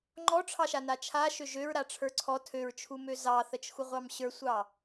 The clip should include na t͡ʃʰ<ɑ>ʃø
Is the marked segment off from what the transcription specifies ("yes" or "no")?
yes